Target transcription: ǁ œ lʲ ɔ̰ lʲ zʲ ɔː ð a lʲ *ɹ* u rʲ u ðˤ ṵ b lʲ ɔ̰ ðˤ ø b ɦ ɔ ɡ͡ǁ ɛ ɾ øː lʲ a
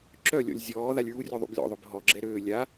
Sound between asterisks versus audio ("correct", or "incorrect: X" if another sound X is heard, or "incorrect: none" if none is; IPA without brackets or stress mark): correct